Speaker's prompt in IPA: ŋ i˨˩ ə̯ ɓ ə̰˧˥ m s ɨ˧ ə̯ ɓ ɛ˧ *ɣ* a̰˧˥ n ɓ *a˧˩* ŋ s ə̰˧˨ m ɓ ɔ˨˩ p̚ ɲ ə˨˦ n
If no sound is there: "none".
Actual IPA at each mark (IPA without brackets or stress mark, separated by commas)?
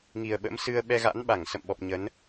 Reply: ɣ, a˧˩